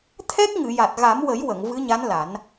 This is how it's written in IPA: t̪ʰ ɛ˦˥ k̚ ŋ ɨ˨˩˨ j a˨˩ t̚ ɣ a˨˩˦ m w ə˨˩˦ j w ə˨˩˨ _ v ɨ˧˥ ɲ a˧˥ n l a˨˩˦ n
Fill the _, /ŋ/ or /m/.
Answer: ŋ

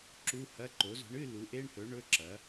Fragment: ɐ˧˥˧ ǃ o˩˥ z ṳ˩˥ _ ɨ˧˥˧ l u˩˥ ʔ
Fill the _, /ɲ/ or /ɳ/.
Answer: ɳ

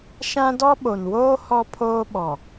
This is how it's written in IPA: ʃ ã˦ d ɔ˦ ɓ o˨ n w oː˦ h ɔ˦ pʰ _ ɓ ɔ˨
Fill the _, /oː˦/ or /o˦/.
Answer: oː˦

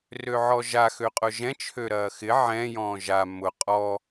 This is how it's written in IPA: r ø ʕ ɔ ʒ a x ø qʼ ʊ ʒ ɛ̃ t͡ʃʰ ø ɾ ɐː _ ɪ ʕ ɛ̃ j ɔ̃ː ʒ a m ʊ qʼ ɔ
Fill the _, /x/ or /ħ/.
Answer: x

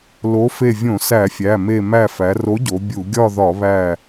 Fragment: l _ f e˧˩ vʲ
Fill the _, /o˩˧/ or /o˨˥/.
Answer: o˨˥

